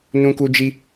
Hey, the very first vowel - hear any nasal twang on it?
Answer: yes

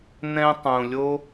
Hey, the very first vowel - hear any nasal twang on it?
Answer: yes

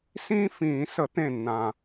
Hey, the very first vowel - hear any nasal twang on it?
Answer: yes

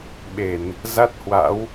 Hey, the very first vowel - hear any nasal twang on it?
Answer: no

